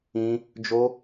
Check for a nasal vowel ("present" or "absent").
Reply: present